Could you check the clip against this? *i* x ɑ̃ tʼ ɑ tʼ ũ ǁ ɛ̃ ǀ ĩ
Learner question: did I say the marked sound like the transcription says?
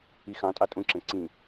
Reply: yes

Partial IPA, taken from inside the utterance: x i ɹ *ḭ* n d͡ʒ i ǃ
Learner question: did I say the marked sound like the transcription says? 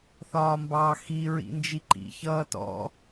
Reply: yes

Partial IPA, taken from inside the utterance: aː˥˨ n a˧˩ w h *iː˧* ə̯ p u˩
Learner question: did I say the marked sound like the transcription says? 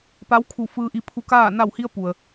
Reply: no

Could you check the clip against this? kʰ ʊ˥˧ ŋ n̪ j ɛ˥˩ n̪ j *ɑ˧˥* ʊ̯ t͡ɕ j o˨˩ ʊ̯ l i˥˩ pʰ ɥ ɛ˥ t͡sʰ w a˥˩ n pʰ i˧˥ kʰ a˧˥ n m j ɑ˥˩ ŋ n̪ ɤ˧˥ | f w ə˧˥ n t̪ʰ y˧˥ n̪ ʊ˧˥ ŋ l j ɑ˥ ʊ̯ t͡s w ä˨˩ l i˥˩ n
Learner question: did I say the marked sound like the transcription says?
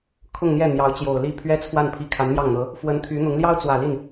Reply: yes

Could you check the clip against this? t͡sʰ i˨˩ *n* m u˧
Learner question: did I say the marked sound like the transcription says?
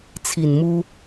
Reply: yes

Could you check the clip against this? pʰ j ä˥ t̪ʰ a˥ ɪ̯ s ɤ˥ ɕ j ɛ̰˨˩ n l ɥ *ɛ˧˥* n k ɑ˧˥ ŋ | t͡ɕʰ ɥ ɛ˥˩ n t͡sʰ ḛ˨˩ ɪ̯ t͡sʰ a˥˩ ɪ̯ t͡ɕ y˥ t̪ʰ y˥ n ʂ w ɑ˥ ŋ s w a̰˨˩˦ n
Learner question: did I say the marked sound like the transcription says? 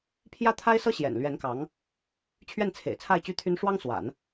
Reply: yes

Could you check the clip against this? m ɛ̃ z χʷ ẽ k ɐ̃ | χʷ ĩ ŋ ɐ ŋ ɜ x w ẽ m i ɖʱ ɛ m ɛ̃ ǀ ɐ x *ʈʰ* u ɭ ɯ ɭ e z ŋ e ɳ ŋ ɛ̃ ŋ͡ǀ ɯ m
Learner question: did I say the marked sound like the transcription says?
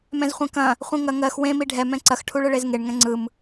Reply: yes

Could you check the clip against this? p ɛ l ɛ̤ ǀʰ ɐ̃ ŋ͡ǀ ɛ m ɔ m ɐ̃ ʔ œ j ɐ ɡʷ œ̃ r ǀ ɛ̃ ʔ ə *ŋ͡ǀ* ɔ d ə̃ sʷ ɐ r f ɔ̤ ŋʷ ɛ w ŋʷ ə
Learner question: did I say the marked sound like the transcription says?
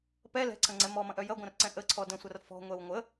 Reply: no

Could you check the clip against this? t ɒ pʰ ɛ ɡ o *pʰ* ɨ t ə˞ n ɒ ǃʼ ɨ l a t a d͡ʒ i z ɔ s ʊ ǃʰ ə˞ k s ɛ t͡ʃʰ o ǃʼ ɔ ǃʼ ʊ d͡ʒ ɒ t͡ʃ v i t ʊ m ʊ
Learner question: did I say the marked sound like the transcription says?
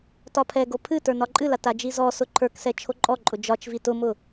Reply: yes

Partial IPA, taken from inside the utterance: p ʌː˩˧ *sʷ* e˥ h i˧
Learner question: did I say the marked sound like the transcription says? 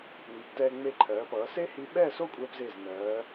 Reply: no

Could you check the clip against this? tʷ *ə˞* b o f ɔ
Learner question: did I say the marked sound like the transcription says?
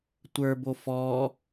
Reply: yes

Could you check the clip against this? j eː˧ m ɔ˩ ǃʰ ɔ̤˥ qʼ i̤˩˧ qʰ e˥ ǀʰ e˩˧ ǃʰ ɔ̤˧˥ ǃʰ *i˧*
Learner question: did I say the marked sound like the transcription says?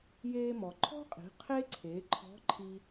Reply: yes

